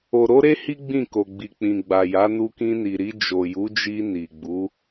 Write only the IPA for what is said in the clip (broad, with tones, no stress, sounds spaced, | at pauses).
o˨ ɾ o˧ ɾ e˦ h i˦ ɡ͡b ĩ˦˨ k o˨ ɡ͡b i˨ k͡p ĩ˨ ɡ͡b a˨ j a˨˦ n u˧ k ĩ˧ n i˨ ɾ i˧ d͡ʒ o˨ j u˨˦ d͡ʒ i˧ n i˨ ɡ͡b u˨˦